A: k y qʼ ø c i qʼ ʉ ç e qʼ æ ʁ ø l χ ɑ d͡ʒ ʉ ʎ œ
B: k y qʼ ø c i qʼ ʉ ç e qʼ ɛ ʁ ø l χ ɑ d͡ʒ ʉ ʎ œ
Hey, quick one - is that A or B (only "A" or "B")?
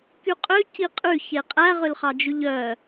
A